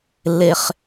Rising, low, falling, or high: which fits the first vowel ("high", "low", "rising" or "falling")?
low